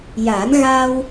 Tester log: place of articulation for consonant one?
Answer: palatal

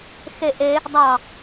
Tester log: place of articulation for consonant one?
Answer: velar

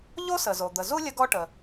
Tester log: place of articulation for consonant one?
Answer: palatal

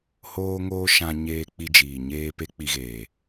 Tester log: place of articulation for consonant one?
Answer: glottal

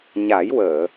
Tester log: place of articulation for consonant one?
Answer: palatal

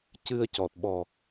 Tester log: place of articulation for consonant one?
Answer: palatal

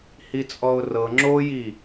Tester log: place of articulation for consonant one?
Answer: glottal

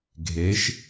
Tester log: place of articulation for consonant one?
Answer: velar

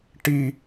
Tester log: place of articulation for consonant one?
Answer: retroflex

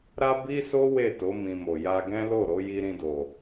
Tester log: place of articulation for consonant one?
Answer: alveolar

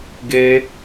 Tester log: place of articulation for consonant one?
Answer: velar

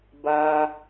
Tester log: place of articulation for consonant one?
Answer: labial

